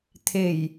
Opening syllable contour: low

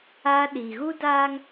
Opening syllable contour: high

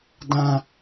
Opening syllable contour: low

